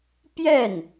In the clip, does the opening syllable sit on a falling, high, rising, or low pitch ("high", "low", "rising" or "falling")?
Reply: falling